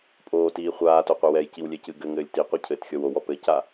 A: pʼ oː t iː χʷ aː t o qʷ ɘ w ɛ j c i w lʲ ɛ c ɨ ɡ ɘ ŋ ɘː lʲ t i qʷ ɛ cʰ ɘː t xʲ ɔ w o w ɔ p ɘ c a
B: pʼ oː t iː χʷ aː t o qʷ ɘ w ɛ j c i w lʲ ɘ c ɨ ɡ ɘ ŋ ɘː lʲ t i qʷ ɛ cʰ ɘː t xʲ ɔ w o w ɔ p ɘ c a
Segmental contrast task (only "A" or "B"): A